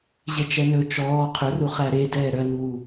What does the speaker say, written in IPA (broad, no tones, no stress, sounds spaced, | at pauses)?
ʑ e t͡ʃ ɛ n ɵ t͡ʃ ɔː qʰ ø r u χ æ ɾ e d ɛː ɾ œ n uː